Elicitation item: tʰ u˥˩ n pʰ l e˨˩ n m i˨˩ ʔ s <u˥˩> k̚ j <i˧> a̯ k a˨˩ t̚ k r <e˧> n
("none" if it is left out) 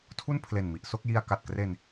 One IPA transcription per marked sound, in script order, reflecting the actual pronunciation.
o˥˩, i˧, e˧

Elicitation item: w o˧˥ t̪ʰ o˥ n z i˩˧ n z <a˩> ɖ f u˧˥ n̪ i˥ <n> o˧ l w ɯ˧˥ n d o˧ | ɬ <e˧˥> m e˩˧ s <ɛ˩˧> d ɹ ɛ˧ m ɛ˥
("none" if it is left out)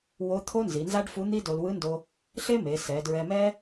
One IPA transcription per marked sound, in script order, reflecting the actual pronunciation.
a˥, d, e˥, ɛ˩˧

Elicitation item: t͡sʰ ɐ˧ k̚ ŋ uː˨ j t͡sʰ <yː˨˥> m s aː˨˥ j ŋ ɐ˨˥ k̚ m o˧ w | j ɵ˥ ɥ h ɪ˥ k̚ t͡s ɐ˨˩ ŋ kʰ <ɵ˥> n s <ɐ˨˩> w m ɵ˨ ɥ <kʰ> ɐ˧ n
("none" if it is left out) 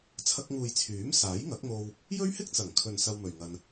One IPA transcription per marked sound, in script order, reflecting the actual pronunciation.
yː˨˥, ɵ˨, ɐ˧, ŋ

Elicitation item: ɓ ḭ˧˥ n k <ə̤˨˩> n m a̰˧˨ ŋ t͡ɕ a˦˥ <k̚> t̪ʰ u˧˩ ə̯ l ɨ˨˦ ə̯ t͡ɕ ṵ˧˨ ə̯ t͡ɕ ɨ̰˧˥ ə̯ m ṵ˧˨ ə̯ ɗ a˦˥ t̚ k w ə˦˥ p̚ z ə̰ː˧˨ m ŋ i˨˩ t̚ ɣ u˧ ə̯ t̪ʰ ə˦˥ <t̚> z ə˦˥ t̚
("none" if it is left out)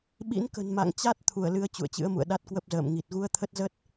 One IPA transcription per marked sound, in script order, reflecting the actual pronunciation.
ə̤˨˩, t̚, t̚

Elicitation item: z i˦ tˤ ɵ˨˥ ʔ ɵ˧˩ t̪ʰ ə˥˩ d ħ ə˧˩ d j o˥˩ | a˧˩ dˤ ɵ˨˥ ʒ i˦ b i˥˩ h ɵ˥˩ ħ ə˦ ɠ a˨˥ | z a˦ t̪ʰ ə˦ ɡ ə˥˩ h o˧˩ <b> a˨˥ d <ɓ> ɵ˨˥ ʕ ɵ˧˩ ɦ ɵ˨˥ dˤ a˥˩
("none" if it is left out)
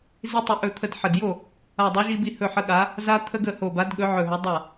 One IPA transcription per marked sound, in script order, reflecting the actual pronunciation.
b, ɠ

